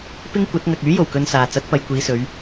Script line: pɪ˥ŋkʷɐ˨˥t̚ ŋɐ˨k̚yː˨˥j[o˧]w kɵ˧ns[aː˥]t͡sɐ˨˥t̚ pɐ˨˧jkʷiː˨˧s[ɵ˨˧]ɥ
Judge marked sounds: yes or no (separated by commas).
no, no, yes